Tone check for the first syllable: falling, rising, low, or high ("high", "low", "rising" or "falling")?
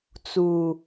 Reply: low